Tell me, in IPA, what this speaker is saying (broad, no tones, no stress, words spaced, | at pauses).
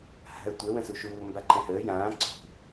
ha̤ə̯tʷɛ wə̃suʃuː mbaǃɛ̃həː jãː ǀʰṳ